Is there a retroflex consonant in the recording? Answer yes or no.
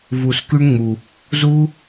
yes